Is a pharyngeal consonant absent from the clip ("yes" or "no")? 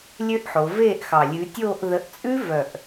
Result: no